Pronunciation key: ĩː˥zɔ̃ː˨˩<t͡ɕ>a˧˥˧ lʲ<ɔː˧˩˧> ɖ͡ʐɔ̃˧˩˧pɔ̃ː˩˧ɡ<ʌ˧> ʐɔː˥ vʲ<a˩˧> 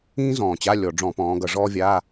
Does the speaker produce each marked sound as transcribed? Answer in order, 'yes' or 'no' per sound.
yes, no, no, no

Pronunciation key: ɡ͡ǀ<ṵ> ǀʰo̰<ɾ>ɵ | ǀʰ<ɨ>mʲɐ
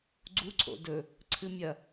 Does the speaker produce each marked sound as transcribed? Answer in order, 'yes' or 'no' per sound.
no, no, yes

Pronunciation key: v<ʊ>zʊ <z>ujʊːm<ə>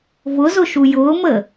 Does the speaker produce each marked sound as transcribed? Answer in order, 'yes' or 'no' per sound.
yes, no, yes

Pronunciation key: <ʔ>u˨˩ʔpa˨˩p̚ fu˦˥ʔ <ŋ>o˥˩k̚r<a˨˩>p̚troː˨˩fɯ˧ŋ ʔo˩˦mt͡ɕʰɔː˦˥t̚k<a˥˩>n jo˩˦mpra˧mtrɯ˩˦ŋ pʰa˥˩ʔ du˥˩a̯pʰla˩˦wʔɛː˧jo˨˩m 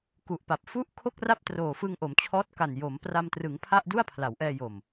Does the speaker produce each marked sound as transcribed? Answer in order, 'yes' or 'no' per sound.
no, no, no, no

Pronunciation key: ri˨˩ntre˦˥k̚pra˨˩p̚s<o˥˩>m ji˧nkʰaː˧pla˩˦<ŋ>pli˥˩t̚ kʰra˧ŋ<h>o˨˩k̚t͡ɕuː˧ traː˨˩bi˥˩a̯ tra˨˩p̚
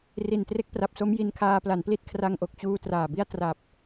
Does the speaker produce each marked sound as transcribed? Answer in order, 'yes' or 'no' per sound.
no, no, no

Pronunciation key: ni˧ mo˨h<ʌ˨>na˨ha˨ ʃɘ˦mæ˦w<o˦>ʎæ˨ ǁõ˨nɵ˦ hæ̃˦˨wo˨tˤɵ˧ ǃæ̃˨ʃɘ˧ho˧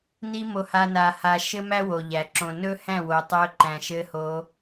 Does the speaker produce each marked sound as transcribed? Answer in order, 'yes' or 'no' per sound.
no, no

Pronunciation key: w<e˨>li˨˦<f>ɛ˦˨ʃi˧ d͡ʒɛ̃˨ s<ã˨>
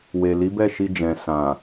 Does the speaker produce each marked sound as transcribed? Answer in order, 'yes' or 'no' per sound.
yes, no, yes

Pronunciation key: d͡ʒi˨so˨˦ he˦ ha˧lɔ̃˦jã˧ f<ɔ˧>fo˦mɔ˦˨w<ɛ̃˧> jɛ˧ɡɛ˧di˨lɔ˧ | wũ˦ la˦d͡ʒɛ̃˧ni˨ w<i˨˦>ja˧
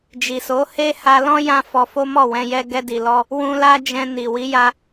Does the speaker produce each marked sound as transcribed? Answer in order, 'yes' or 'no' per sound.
yes, yes, yes

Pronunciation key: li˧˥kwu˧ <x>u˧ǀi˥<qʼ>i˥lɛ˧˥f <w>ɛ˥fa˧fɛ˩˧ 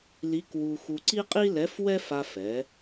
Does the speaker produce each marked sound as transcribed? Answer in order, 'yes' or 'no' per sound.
yes, yes, yes

